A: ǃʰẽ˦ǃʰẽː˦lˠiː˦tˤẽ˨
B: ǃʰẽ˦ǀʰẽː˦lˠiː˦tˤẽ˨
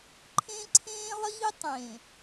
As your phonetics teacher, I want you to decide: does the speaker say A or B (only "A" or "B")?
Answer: B